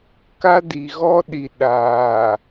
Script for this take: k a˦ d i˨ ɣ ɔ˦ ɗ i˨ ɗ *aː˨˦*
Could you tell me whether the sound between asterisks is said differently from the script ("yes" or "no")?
yes